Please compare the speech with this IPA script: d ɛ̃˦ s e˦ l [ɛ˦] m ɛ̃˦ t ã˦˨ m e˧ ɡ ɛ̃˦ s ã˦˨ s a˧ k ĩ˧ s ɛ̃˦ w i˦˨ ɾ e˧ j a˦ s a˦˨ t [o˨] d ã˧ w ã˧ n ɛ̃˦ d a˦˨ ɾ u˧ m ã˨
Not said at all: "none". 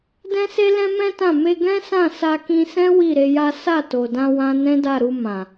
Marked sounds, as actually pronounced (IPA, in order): ɛ̃˦, o˨

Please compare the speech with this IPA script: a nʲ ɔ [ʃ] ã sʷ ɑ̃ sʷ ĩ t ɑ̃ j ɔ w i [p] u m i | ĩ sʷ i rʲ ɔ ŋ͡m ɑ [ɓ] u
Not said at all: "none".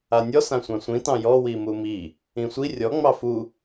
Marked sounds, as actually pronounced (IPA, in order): s, m, f

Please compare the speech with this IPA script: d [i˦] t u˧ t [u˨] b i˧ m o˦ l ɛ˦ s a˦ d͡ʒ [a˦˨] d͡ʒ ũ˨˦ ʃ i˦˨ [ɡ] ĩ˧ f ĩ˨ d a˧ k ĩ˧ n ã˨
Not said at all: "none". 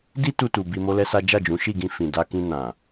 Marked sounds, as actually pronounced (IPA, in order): i˦, u˨, a˦˨, ɡ

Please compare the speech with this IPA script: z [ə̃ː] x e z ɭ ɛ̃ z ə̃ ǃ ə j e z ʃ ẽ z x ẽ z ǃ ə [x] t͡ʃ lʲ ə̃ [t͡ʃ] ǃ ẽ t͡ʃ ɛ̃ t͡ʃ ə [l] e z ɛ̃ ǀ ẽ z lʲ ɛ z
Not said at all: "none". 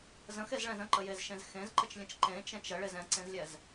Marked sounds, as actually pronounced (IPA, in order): ə̃, none, t͡ʃ, ɭ

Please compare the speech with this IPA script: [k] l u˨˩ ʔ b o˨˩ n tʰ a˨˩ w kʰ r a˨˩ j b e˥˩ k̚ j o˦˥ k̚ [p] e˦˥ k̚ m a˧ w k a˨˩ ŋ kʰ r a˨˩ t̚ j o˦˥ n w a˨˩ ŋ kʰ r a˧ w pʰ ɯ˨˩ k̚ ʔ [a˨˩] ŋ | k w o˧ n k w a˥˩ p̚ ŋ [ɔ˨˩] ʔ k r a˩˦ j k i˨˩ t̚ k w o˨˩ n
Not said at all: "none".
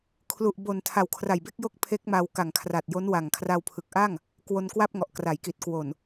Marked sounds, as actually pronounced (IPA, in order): kʰ, pʰ, a˥˩, ɔ˨˩

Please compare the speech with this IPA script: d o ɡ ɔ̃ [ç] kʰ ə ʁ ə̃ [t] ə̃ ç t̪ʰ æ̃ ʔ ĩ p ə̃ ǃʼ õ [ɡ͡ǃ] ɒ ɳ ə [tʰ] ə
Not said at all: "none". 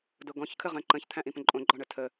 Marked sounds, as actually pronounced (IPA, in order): ç, ǃ, ɡ͡ǃ, tʰ

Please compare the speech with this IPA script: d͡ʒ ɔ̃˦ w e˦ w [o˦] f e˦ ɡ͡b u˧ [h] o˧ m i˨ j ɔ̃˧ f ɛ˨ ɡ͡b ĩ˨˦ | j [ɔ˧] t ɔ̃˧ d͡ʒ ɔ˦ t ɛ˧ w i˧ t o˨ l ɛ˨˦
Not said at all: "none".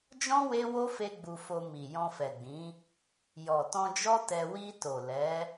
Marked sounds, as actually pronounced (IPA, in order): o˦, f, ɔ˨

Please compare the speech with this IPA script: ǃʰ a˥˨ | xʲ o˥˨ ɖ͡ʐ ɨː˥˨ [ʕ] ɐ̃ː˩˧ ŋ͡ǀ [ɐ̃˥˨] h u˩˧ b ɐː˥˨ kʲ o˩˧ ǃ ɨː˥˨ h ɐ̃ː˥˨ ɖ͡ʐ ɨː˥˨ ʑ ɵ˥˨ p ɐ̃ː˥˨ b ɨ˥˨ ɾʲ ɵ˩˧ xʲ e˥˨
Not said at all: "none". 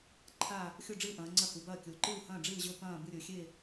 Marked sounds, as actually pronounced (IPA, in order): ʔ, ɐ˥˨

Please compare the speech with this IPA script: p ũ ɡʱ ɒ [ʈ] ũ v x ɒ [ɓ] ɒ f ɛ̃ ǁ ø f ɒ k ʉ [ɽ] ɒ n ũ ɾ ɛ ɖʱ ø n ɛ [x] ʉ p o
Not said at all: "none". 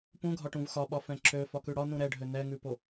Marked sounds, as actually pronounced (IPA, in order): ʈ, ɓ, ɽ, ŋ

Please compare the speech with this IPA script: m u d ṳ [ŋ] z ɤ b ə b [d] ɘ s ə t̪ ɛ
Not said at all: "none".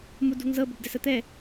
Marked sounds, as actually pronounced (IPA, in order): ŋ, d

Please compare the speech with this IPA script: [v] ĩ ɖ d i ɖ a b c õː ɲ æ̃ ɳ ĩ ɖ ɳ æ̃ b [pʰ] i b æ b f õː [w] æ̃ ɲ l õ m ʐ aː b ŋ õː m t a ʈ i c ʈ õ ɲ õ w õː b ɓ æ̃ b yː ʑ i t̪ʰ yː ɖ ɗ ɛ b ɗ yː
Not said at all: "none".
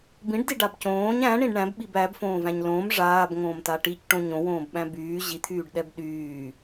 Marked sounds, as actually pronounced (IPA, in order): b, ɓ, v

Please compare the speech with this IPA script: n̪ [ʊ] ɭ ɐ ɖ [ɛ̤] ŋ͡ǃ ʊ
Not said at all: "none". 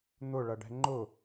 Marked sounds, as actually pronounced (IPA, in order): ʊ, ɛ̤

